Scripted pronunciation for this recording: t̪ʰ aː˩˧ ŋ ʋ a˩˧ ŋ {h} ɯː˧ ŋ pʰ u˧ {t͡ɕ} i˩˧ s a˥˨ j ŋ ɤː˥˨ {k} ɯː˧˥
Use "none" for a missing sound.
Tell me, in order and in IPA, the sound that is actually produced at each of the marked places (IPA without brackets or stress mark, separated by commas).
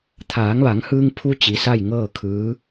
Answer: h, t͡ɕ, kʰ